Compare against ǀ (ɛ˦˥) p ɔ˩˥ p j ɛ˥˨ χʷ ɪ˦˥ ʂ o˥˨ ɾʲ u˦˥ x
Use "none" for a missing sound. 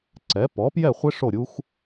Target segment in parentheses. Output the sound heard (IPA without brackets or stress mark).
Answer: ɛ˩˥